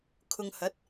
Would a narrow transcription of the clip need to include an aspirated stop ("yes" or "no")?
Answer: yes